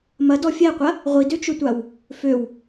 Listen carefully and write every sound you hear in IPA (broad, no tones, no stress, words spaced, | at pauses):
mɐ dɔfʲɛqʷɐ | ʁʷidøt͡ʃøtʷaw | føw